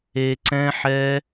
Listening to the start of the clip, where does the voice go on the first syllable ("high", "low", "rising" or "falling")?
low